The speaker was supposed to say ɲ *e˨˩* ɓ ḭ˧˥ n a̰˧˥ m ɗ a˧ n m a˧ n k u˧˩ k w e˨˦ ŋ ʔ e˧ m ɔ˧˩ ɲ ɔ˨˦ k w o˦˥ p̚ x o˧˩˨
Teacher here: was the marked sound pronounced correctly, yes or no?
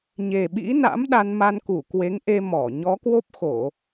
yes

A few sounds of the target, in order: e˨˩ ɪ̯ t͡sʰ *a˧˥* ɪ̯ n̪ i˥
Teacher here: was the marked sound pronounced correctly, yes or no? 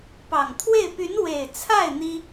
no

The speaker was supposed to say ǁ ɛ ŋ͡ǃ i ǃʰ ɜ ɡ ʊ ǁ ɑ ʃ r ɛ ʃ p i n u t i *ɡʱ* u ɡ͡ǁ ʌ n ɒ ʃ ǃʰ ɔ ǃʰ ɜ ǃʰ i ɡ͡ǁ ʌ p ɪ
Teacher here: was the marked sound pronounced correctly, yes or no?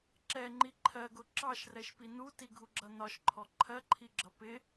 yes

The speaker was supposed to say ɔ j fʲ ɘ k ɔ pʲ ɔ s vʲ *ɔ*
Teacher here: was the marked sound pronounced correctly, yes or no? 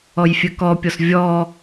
yes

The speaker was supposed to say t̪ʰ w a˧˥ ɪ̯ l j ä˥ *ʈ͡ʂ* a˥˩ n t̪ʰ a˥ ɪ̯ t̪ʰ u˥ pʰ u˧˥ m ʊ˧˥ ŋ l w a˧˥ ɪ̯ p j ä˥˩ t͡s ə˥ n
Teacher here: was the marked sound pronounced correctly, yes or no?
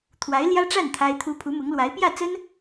yes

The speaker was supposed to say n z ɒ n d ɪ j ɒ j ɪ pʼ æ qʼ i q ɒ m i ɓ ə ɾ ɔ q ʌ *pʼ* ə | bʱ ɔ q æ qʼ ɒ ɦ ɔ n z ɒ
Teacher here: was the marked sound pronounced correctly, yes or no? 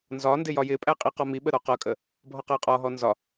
no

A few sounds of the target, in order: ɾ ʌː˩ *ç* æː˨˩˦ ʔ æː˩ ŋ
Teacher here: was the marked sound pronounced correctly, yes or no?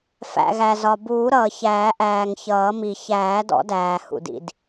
yes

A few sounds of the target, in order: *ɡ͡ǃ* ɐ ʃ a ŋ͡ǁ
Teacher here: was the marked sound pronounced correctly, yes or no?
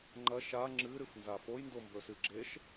no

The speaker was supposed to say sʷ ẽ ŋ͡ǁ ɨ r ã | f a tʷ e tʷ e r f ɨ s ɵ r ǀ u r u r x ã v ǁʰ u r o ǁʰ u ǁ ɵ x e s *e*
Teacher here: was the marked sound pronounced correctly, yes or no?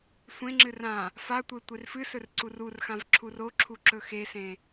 no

